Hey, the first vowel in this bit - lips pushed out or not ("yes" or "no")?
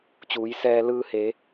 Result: yes